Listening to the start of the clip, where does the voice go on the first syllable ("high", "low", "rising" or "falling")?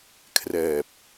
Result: low